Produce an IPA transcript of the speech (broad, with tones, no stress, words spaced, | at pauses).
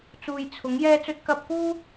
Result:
t͡suː˨j t͡sʰʊ˨˥ŋ jɛː˧t͡sɵ˧t̚ kɐ˧p̚kuː˥